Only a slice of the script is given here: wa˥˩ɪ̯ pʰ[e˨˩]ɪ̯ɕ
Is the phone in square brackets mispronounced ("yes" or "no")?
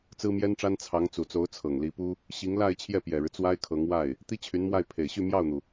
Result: no